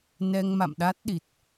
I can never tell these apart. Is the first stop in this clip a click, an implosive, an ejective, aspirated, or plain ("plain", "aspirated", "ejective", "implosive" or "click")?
implosive